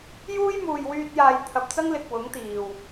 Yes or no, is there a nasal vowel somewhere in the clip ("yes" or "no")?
no